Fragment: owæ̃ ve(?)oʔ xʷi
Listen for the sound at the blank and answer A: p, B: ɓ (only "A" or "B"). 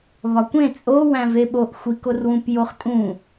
B